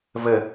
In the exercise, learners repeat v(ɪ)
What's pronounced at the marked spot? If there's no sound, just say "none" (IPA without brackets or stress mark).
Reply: ə